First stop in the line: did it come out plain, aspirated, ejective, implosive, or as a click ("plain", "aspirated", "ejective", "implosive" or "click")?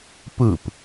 plain